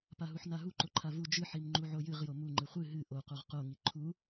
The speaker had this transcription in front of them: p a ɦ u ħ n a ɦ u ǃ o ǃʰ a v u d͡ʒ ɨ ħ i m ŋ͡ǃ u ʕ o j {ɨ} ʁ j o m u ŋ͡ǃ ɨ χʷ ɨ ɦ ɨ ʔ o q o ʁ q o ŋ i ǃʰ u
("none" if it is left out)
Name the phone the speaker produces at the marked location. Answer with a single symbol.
ɨ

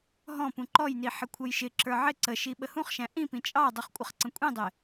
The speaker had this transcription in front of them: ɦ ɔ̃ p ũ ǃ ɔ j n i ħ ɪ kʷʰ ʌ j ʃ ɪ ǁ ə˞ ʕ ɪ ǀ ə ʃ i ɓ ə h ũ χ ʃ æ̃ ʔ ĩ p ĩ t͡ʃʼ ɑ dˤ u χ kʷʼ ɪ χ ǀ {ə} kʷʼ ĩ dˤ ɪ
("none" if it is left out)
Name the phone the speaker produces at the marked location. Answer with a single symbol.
ə̃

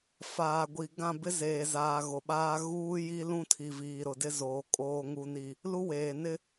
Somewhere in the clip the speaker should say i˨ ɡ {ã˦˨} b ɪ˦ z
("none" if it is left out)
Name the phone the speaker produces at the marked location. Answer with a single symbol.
ã˦˨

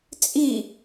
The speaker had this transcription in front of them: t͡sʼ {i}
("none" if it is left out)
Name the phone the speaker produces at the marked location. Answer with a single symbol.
i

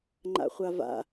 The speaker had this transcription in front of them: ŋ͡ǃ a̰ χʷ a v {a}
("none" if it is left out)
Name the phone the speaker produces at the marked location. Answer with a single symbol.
a̰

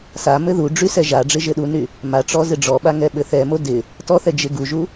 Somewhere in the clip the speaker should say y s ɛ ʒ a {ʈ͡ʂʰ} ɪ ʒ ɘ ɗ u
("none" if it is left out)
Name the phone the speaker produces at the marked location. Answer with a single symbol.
ɖ͡ʐ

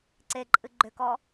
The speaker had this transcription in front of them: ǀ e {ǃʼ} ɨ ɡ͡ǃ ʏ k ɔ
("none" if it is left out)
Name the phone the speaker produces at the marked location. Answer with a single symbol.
ǃʼ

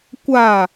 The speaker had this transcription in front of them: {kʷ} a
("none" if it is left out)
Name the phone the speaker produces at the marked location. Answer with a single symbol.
kʷ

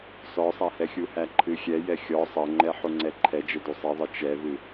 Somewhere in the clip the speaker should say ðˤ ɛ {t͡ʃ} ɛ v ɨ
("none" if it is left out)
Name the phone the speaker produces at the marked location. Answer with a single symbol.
t͡ʃ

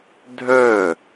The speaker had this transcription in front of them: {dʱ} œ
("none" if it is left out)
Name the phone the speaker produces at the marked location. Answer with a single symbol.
dʱ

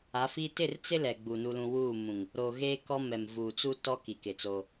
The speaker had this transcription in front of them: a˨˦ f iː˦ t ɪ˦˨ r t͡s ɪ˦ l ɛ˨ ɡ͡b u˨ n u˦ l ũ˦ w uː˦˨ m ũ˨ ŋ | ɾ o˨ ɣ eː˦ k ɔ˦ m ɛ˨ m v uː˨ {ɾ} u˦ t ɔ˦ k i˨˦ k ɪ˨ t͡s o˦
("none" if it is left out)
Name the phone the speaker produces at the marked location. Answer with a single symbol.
t͡s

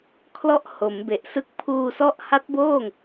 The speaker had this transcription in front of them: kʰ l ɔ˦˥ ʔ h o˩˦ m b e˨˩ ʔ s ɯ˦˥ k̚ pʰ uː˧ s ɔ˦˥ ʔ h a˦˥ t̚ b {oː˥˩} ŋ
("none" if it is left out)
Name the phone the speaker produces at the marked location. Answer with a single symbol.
oː˥˩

